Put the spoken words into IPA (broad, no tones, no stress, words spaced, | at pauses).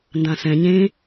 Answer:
ndãsɛ̃ ɲẽ